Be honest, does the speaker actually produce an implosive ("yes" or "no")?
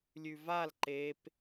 no